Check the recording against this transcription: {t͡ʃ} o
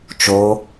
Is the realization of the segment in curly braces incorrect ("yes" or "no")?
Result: no